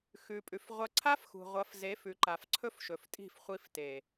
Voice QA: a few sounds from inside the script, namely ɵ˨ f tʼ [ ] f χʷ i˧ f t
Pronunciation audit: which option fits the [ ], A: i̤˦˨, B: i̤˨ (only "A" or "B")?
A